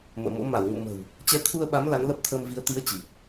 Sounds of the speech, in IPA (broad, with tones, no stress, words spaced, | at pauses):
mə̰ː˧˨mo̰˧˥ ma˧˩wŋṵ˧˨mə̤˨˩w | t͡ɕɛ˨˦t̪ʰu˧ə̯ɓa˨˦m la˨˦nlə˦˥p̚t̪ʰəː˧mvi˨˦ə̯ t̪i˨˦ə̯ t͡ɕi˨˩p̚